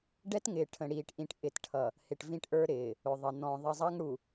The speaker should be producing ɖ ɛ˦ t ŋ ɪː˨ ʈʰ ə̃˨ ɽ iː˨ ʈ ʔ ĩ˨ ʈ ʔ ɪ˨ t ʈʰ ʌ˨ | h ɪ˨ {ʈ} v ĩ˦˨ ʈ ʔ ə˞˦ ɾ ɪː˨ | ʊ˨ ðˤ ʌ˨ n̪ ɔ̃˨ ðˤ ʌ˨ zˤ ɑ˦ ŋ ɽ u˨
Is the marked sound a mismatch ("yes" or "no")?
no